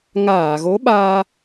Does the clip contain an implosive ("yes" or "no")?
yes